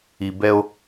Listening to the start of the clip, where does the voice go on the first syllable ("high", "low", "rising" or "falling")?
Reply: low